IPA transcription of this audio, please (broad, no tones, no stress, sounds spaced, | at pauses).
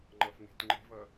ŋ͡ǃ ʌ f ŋ e̤ t ŋ͡ǃ e̤ v ʌ